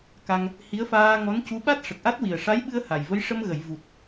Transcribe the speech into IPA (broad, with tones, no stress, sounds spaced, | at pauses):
k a˧ ŋ | h i˧˥ ə̯ f aː˧ ŋ ɔ˧˥ n c u˧˥ ɓ a˦˥ t̚ ʂ ə˨˩ k̚ ʔ a˦˥ t̚ w i˨˩ ə̯ ʂ a˧˥ j ɓ ɨ˧ ə̯ h a˨˩ j v ə˧˥ j ʂ ə˧ m ɣ ə˨˩˨ j v u˨˩ t̚